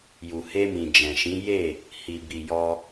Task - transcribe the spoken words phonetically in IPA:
j u˨ h e˧ m ĩ˨ d͡ʒ ɛ̃˨ ʃ ĩ˨˦ j e˦˨ | h i˨ b i˨ j ɔ˧

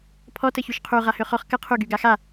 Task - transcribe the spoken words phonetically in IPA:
pʰ ɔ t ə ç y ʃ qʰ u ʁ a h ø χ ɔ χ k ə qʰ u ɡ y ɡ a x a

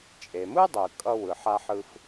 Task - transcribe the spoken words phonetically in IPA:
t͡ʃʼ e˩ m ɯ˥ dˤ ɯ˩ kʼ ʌ˥ w ɯ˩ ħ a˥ ħ ɯ˥ f

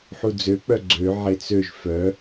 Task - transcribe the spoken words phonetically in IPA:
ħ u d͡z ø k͡p œ ɡ͡ǀ ø ʕ e t͡s ø ʒ f œ

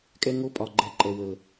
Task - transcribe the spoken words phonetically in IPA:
kʼ ɛ˦ ŋ o˦ pʼ ɒ˨ ɡ͡ǃ ɛ˨˦ ǃʼ ɛ˨ w əː˨

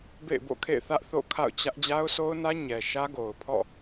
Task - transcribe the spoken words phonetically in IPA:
b ḛ˦˨ ɪ̯ b o̰˦˨ kʰ ḛ˦˨ ɪ̯ θ ä˦ ʔ θ o̰˦˨ kʰ a̰˦˨ ʊ̯ t͡ɕ ä˦ ʔ d͡ʑ a˦ ʊ̯ sʰ o˦ ʊ̯ n ä˦ ɲ ɛ˨ ʃ ä˦ ɡ o˨ ʊ̯ pʰ ɔ̰˦˨

